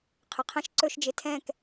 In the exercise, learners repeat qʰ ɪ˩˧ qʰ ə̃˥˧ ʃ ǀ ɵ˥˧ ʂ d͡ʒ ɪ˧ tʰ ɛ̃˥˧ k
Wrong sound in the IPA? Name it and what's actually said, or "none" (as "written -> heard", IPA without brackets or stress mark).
ʂ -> ʃ